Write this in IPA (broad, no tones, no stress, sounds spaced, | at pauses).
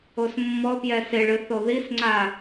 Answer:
o s mː ɔ p j ɛ s ɪ ɭ ɨ θ o ð i s ŋ͡ǀ a